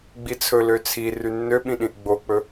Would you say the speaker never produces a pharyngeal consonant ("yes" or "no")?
yes